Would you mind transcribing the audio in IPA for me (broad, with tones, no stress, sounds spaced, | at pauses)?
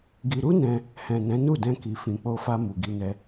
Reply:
ɡ i˧ ɾ u˦ n ɛ̃˧ | h ɛ̃˨ n ɛ̃˨˦ n u˦˨ d ɛ̃˧ k i˨ f ĩ˨ k͡p o˧ f a˧ m u˨ ɡ i˧ n ɛ˧